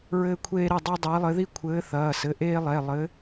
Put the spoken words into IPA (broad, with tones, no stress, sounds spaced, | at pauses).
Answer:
ɹ ɘː˥ kʷʰ eː˥ ɾ i˥˩ dˤ a˥ dˤ eː˨˥ lˠ ɘ˨˥ ð i˥ kʷʰ ɘː˨˥ θ ɐː˩˧˩ s ɘ˩˧˩ ʔ eː˥ lˠ ɛ˩˧˩ lˠ ɘ˨˥